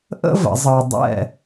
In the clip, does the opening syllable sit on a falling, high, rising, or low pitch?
high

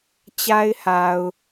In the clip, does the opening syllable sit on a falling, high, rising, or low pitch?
high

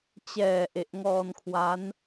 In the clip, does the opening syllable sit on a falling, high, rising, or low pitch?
low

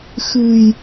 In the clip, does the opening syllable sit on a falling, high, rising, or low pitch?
low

